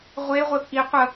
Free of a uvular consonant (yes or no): no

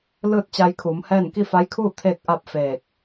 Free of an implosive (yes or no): yes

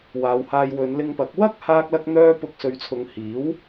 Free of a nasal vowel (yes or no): yes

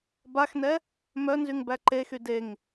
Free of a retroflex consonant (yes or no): yes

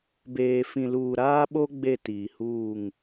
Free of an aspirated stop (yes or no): yes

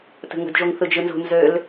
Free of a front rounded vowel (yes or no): no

